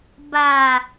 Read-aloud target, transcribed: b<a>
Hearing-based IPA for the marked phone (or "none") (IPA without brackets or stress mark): a